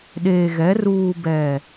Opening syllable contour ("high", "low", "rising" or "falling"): low